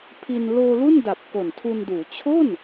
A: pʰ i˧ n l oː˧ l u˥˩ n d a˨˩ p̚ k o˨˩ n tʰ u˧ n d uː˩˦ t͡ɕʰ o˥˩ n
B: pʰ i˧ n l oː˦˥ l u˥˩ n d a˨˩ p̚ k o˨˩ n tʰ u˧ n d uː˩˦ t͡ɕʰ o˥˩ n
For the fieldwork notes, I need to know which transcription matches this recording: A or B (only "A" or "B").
A